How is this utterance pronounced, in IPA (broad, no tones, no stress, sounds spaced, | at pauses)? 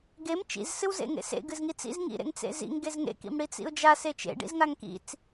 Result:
ɡ e m t͡ʃ ḭ z s ɨ w z ḛ ŋ ḛ s ḛ ɡ ɨ z ŋ i t͡s ḭ z ŋ ḭ ɾ ḛ ŋ t͡s ḛ z ḭ ŋ ɡ e z ŋ ḛ k ḭ m ɽ i t͡s ḭ ʊ̯ d͡ʒ a s e t͡ʃ ḛ ɖ ḭ z ŋ a ŋ k ḭ t͡s